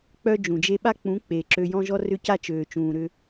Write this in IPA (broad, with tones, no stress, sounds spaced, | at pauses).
k͡p œ˦ d͡ʒ ũ˨ d͡ʒ e˦ ɓ a˦ k͡p ũ˨˦ k͡p e˨ ǁ ø˧ j ɔ̃˦ ʒ ɔ˦ r ʏ˦ c a˦ t͡ʃ øː˨ t͡ʃ ũː˨ ɾ ʏ˧